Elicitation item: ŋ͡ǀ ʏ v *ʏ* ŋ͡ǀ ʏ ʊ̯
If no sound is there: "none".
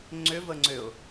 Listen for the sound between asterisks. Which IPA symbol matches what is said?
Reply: ə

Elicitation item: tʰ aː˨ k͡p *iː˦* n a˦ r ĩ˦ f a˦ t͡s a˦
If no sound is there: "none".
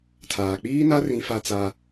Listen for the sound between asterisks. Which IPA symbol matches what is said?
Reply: iː˦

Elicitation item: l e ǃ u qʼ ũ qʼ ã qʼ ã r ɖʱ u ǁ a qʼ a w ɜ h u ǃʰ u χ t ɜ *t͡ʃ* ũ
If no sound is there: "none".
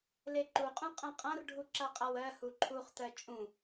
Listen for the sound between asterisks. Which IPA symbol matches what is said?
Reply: t͡ʃʼ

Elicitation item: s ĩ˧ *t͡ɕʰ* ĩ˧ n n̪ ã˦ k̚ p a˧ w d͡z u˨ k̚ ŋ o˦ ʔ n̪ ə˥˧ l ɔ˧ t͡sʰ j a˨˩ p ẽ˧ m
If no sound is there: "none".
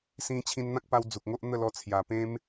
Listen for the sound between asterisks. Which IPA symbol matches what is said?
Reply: t͡ɕʰ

